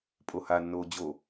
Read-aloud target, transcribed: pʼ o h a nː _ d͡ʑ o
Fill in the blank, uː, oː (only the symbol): oː